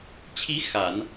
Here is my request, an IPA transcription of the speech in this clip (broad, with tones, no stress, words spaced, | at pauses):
t͡ɕʰi˧˥ xa˨˩˦n